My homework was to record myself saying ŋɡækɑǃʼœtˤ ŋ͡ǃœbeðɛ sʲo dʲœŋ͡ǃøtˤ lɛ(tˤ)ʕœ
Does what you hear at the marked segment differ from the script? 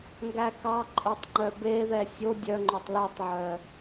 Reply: no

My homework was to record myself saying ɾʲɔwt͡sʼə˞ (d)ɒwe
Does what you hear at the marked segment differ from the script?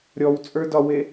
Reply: no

